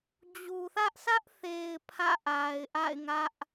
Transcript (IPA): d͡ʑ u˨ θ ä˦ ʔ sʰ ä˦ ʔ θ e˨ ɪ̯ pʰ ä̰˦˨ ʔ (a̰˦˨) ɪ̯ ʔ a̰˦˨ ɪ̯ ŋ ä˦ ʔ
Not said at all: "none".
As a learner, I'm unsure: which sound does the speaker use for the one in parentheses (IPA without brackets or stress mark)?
a˨